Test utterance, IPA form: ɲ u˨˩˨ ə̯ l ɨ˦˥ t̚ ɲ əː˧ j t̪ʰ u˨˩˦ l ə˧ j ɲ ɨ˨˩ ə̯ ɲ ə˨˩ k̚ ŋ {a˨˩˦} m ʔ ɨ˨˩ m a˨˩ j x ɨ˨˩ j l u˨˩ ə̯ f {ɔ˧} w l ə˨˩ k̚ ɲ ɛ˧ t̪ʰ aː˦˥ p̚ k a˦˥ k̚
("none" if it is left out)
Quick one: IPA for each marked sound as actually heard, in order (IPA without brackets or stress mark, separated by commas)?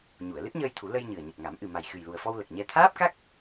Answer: a˨˩˦, ɔ˧